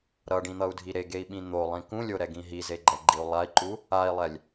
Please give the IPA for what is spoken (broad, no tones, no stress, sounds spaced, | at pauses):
ɾ ʌ ɖ ĩ n̪ ʌ u̯ dʱ i ɾ e ɡ e i̯ ɓ ĩ n̪ o lˠ ĩ k ũ lʲ o ɾ ɛ ɡ ĩ ɦ i z e ɡ͡ǃ ɛ ɡ͡ǃ i u̯ lˠ a i̯ ǃ u | a i̯ lˠ ɛ lʲ